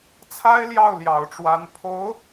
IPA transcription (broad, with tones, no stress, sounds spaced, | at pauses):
t͡sʰ a˥ ɪ̯ l j ɑ˥˩ ʊ̯ l j ɑ˨˩ ʊ̯ ʈ͡ʂ w a˧˥ n pʰ o˧˥ ʊ̯